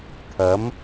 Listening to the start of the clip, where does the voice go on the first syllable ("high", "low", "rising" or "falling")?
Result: rising